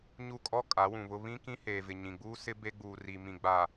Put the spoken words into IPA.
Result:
ɲ u˦ kʼ ɔ˦ kʼ a˨˦ w ũ˨ β ʊ˦ β ĩ˦ k ĩ˦ h eː˨ v ɪ˨ ɲ ĩ˨ ɡ͡b uː˦ s ɪ˦ b e˦ ɡ͡b uː˨ r i˨ m ĩ˨ ɡ͡b a˨

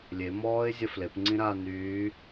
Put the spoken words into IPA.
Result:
lʲ e m ɔː ɪ̯ zʲ ɐ f l e p ŋ͡ǀ ĩ ɾ aː n yː

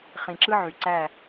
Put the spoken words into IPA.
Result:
χ ĩ˨ ǁ ɯ˦ ʕ y˨ ǀ æ˦˨

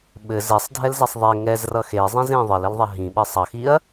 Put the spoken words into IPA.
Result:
ɓ ɘ z ɛ sˤ dʱ ɛ l z ɛ sˤ ðˤ ɛ ŋ ɛ z r ʌ x e zˤ ĩ z ẽ ðˤ ɘ l ɘ l ðˤ ɐ ɦ ĩ ɓ ɘ sˤ ʌ x i ɐ̯

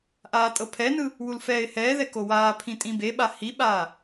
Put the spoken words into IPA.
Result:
ʔ aː tʼ ɤ pʰ ɛ n ɯ | w u l f ɛː ɪ̯ h ɛː ð ɛ k o w aː pʰ ĩ tʼ ĩ b e ɓ a h i ɓ aː

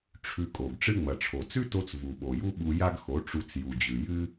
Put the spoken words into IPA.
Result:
ʈ͡ʂʰ ʉ˧ kʼ o˨ ɡ ʈ͡ʂ ɨ˦ ŋ͡m ɐ˨ ʈ͡ʂʰ o˨ t͡s ʉ˦ t o˧ t͡s v u˨ ɓ o˨ j u˦ ɓ u˧ j a˦ ɡ x o˨˦ ʈ͡ʂ u˧ t͡s j u˨ d͡ʑ ʉ˨ j ɨ˦

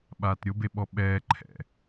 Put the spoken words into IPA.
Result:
ɓ aː t ɾʲ ʊ b e ɓ ɔ ɓ ɛː ǃʰ ɛ̰

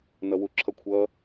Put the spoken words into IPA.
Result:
n ʌ w u ǁʰ ʌ kʷʰ ʌ

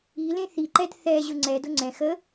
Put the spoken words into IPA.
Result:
i l ẽ θ i ǃ ɛ d θ ɛ ʑ ʊ ŋ͡ǀ ɛ d ʊ ŋ͡ǀ ɛ̃ x ə

